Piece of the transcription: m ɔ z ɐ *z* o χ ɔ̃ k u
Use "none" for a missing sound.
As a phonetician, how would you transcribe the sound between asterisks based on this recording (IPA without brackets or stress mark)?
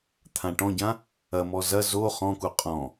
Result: z